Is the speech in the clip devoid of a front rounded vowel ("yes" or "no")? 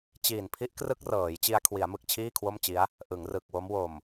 yes